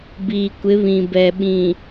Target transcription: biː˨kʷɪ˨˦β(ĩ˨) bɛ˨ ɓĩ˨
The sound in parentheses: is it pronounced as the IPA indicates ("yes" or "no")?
yes